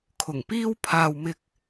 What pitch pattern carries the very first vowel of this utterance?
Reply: low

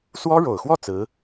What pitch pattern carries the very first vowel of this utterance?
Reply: high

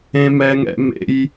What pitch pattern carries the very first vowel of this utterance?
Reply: high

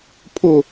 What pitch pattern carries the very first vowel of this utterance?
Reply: falling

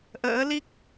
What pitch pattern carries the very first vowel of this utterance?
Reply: rising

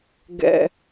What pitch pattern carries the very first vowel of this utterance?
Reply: high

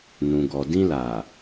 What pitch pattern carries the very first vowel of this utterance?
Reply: low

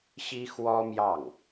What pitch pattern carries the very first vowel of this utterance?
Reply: high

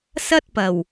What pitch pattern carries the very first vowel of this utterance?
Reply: high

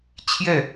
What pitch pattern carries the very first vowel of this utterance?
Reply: falling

